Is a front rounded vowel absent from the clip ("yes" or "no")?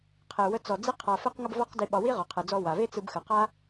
yes